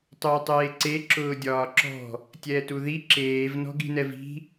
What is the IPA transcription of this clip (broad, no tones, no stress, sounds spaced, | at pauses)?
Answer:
tˤ uː tˤ eː ǀ e ǁ ʊː dʲ ɒː ǁ ɔ̤ | tʲ ɛː t u ð i ǁ eː v n ɔ̤ ɡ i̤ n ɛ v i̤